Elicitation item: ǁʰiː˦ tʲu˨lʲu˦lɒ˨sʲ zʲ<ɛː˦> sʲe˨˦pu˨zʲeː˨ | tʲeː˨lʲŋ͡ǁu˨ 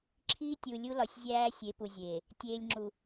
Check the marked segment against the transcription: incorrect: æː˦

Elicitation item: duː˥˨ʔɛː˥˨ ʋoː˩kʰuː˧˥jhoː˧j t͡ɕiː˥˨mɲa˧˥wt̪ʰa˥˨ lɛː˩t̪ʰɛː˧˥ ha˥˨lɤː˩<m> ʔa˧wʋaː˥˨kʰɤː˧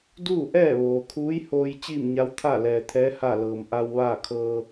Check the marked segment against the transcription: correct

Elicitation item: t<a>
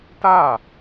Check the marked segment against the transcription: correct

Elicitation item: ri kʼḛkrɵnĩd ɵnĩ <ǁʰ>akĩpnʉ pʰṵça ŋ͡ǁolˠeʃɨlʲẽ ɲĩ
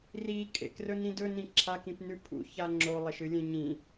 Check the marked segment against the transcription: correct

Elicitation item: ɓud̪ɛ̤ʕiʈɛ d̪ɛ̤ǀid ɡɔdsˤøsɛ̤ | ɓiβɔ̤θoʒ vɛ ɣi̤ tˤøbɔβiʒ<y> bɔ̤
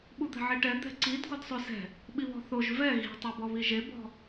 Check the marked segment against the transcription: incorrect: e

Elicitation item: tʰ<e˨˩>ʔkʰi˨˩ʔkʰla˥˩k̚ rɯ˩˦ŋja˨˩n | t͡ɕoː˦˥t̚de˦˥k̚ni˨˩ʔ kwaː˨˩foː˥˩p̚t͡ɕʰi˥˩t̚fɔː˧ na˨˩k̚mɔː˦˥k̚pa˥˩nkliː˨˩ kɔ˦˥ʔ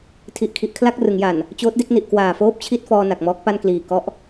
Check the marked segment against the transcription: incorrect: i˨˩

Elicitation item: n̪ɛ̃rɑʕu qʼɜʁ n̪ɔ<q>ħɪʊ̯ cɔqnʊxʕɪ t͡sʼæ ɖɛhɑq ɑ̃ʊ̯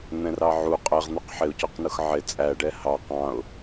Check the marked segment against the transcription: correct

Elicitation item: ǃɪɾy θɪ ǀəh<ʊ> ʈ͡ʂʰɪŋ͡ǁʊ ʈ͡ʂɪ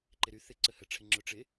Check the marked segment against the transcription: incorrect: ə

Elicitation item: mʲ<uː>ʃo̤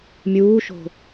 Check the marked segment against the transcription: correct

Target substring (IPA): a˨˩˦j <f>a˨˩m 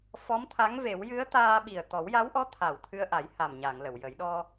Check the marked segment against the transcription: incorrect: h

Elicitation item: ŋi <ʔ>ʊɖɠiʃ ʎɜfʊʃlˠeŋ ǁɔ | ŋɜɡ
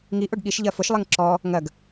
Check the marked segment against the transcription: correct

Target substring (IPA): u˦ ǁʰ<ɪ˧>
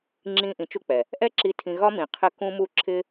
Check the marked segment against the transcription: incorrect: ɪ˦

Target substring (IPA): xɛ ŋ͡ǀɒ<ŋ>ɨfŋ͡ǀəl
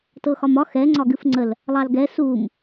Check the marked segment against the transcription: incorrect: ɡ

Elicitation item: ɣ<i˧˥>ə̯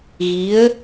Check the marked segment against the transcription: correct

